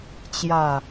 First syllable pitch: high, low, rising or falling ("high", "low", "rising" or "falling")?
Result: low